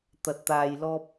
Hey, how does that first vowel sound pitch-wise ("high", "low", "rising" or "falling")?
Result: low